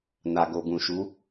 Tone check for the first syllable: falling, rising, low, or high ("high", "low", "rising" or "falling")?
low